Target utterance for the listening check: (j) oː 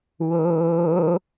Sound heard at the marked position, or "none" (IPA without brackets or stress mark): w